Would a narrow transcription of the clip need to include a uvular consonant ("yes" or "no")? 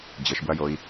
no